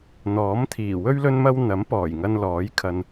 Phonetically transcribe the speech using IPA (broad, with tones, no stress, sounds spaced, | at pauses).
n̪ ɔː˨˥ m t̪ʰ iː˨˩ w ɵ˥ ɥ l ɵ˥ n m ɐ˥ w n̪ ɐ˨˥ m p ɔː˨˩ j ŋ ɐ˧ n l ɔː˨˥ j kʰ ɐ˧ n